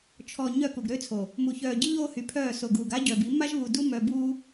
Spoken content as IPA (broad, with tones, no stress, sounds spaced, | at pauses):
t͡ʃʰ ɔ˨ ɲ œ˦˨ k u˨ ɡ ɾ ø˦ t͡sʰ o˨ | m u˨ ç œː˨ ɟ i˦ ʎ oː˦ h y˨ pʰ œː˦˨ s o˨ ɡ uː˨ ɡ a˦ ɟ œ˨ b i˨˦ m a˦ ʒ β u˨ d u˦ m œː˨ b uː˦